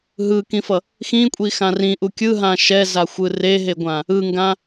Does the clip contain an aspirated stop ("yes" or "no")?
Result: no